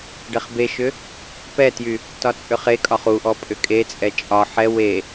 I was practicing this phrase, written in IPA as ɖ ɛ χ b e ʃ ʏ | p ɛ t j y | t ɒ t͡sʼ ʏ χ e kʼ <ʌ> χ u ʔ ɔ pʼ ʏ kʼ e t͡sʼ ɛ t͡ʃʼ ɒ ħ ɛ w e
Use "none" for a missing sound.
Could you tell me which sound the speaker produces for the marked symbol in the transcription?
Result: ɒ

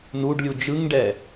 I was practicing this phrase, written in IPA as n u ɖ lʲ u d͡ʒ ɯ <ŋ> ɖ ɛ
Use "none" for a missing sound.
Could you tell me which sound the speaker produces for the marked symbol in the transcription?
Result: ŋ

